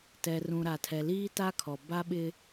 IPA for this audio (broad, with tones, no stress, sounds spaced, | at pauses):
t ɛ˨ r ũ˨ ɾ a˨ tʰ ɛ˨ l iː˦ t a˦ kʰ ɔ˨ b a˦ ɓ ɪ˦